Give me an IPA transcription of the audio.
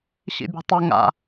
ɕ ḭ bʲ o̤ tˤ ɵ ŋ a̰

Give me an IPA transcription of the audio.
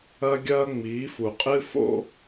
ɐ˦ ɡʲ ɐː˦ ŋ͡m iː˨˦ f u˨ qʼ ɨ˦ f o̰˦

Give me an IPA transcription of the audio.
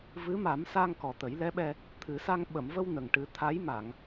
v ɨ˧˥ m a˨˩˦ m s a˧ ŋ k ɔ˨˩ t̪ ə˨˩˦ j l ɛ˧˥ ɓ ɛ˧ | t̪ʰ ɨ˨˩˦ s a˧ ŋ ɓ ə˨˩˨ m v ə˧ w n ə˨˩ ŋ ʈ ɨ˨˩˦ t̪ʰ a˧˥ j m a˨˩˨ ŋ

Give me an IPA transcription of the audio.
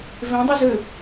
v ẽ dˤ y z ø

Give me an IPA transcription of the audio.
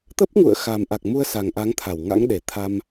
t̪ ə˦˥ p̚ ŋ ṵ˧˨ ə̯ x a˨˩ m ʔ a˨˩ k̚ m u˧ ə̯ s a˨˩ ŋ ʔ a˨˦ ŋ t̪ʰ a˧˩ w ŋ a̰˧˥ ŋ ɗ e˧˩ t̪ʰ a˧ m

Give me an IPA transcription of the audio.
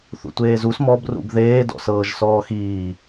θ ṵ tʷ eː z u s m ɔ b r ṵ b ð eː d ɔ̰ s ɤː ʒ s ɔː x iː

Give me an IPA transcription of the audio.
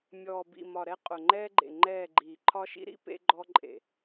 mʲ ɔː˨ b ḭ˨ m ɒ˨ ɾ ɛ˦ qʼ ʊ˨ ŋ͡ǃ ɛː˦ ɡ͡ǃ ḛ˨ ŋ͡ǃ ɛː˦˨ ɡ͡ǃ iː˨ ǃʰ ɒ˦ ʃ ḭ˦ ɾ ḭ˦ p ḛ˦ ɡ͡ǃ ɔ˦ ǃʼ ḛ˨

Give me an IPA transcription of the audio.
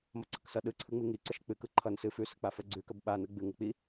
m ʌ ǀ ʌ k s ʌ ɗ ɯ ǀʰ ɯ ŋ͡m i ŋ i ǀ ə ʃ k͡p ɨ k ɯ ǃʰ ʌ n s ɨ f ʉ s ə k͡p a f ə ɡ͡ǀ ʉ k ə b ɓ a n ɯ ɡ͡b ɨ ŋ ɨ k͡p i

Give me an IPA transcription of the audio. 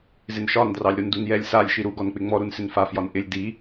z ɪ n ʃ ɒ n d r ɑ lʲ ɾ u n d u n j ɛ lʲ s a lʲ ʃ i ɾ u ɡ ɔ n k͡p ɪ ŋ͡m ɔ ɾ u n s ɪ n f a f j ɒ n ʔ ɪ lʲ d i

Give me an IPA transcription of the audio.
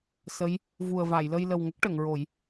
s ə˧˥ j | v u˨˩ ə̯ v a˨˩˨ j l ə˧ j l ə˨˩ w ŋ ə˦˥ k̚ ʈ ə˨˩˨ ŋ ɹ o˨˩˦ j

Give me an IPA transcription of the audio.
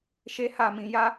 ʃ e˦ h a˦˨ m ĩ˧ j a˦

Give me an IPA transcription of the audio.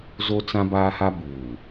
z o˦ t͡s ã˦ b aː˦ h a˦ b uː˨

